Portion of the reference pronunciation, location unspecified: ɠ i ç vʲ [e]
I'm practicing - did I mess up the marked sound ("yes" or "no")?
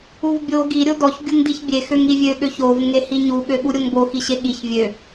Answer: yes